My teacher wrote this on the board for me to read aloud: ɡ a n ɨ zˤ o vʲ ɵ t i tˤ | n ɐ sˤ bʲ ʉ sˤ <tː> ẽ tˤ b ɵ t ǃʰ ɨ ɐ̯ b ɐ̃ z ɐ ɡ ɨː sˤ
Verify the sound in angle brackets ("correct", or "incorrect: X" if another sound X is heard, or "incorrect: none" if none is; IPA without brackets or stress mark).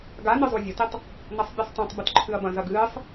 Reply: incorrect: tˤ